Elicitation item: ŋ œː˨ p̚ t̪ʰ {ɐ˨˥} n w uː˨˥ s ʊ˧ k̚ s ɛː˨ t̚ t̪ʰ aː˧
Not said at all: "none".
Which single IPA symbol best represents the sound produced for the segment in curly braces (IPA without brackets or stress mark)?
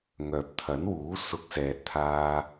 ɐ˨˥